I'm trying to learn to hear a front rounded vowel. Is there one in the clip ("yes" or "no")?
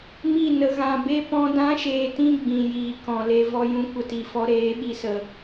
no